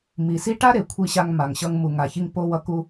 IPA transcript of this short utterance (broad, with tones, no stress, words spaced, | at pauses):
mi˨si˦ ʈa˦ɾe˨ kʷʰi˧ɕa˧ŋ ma˨ŋɕʌ˧ŋ mu˨ŋa˨çi˧ŋ po˧wʌ˧ ku˧